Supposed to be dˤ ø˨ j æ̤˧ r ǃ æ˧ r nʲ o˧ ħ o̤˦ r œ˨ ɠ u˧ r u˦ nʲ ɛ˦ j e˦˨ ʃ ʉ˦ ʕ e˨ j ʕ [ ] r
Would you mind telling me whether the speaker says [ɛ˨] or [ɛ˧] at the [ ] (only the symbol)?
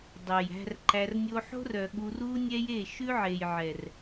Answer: ɛ˨